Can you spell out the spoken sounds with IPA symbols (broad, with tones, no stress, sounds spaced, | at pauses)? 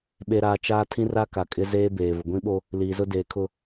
ɓ e˨ ɾ aː˨ t͡ʃ aː˦ tʰ ĩ˦ r a˦ k a˨ kʼ ɪ˦ z eː˦ b eː˨ v ʊ˨ ɡʷ ĩ˦ ɓ o˦ | l iː˨ z ʊ˦ d eː˨ kʰ ʊ˦˨